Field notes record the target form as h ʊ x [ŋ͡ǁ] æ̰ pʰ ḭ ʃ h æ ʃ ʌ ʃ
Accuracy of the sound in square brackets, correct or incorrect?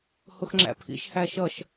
correct